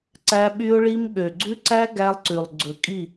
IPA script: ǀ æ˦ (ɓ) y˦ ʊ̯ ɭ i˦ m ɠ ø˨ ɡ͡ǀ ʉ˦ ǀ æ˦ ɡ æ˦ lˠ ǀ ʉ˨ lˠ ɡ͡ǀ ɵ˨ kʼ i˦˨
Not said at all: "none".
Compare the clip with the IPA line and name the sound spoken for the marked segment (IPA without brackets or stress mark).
ɓ